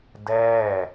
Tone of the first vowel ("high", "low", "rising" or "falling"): falling